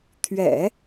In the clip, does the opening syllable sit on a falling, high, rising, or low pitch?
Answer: low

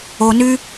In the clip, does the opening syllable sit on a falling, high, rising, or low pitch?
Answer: low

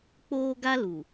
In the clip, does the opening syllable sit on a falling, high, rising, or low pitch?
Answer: high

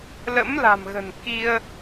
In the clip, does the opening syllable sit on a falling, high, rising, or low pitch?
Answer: rising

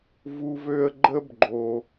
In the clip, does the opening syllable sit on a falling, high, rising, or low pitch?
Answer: high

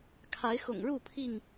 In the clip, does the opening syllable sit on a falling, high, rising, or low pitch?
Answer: rising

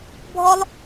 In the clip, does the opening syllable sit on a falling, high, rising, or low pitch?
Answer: high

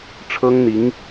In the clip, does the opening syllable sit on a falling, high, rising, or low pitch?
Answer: high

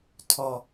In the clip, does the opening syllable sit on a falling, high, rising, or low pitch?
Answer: low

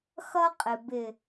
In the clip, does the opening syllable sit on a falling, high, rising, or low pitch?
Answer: high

